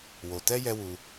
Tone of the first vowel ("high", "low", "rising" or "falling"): low